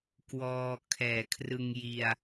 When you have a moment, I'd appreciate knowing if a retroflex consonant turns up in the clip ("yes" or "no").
no